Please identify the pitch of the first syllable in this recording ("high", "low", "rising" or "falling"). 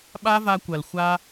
high